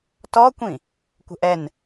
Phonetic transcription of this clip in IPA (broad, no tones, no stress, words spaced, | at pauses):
tɔkʷĩ | kʷə̤ʔɛn